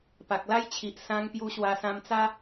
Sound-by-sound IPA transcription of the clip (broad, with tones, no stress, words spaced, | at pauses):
pa˨k̚la˦jt͡ɕʰi˨ʔ sã˧ŋpju˧ ɕwa˧sã˧mt͡sa˦